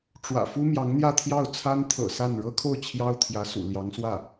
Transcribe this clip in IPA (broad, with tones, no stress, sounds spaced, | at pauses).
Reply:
ʈ͡ʂ w ä̰˨˩ f u˥ m j ɑ˧˥ ŋ n̪ j ä˥˧ t̪ʰ j ɑ˥˩ ʊ̯ t͡sʰ a˥ n t̪ʰ ɤ̰˨˩ s a˥˩ n ɻ ɤ˥ kʰ o˥˩ ʊ̯ t͡ɕʰ j ɑ˥ ʊ̯ t̪ʰ j ä˧˥ s ṵ˨˩ l j ɑ˧˥ ŋ s w ä˥˩